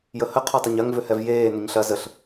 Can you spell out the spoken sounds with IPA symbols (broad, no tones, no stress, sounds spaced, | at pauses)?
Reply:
j ə h ə qʰ o tˤ ɐ ɲ ɐ ŋ v ʏ h ɛ v j eː n ʏ ɲ ɬ ɐ z ə ɬ